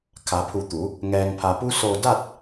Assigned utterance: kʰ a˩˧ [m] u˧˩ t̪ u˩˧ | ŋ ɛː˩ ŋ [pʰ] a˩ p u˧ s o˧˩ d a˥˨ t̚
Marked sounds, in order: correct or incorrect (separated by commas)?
incorrect, correct